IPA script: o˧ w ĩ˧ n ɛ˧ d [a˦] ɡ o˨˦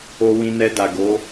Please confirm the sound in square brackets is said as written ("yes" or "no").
no